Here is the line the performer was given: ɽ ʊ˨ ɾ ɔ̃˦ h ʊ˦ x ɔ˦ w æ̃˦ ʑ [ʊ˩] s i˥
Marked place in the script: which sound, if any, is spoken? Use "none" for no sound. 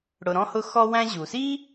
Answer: u˩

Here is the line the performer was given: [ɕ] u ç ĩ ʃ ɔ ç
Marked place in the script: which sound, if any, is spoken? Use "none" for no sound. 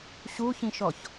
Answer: ɕ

